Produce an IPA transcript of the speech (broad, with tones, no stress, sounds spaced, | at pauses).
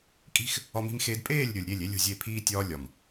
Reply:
kʼ i̤˦ x | ɒ˦ m i̤˦ m x eː˦ d pʼ eː˦˨ lʲ ɾʲ o˨ lʲ ɾʲ e˦˨ lʲ e˦ lʲ ṳ˨ zʲ e˦˨ pʰ iː˦ tʲ ɒː˦ lʲ ɒ˨ m